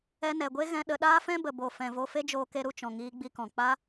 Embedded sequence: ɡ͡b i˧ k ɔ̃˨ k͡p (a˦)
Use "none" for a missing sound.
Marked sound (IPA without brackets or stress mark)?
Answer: a˦